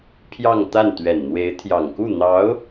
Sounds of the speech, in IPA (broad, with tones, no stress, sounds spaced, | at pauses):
pʰ j ɑ˥˧ ŋ t̪ a˥˩ n t̪ ɥ ɛ˨˩ n n̪ w e˧˥ ɪ̯ t̪ʰ j ɑ˨˩ ŋ k u˥˩ n̪ ɑ˧˥ ʊ̯